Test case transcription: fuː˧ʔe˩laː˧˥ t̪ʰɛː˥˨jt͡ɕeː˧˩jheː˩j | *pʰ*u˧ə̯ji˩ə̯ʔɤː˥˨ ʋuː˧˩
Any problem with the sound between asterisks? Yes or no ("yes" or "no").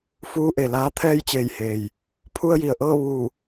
no